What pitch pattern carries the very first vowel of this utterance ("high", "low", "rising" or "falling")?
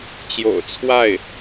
low